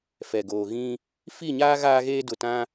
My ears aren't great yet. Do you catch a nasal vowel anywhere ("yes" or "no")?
yes